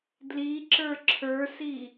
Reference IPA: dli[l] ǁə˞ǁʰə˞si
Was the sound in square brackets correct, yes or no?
no